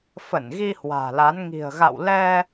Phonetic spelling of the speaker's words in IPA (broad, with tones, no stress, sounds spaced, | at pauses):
f ə˧˩ n ɣ i˧ h w a̤ː˨˩ l a˨˦ n ŋ i̤˨˩ ə̯ ɣ a̰˧˨ w l ɛ˧